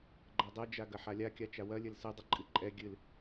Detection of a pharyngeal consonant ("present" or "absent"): present